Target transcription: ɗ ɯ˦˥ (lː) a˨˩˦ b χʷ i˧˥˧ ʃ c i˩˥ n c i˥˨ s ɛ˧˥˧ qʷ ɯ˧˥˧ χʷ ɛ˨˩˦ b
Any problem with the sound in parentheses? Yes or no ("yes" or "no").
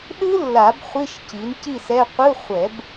no